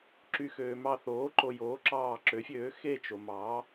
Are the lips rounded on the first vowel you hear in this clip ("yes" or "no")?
yes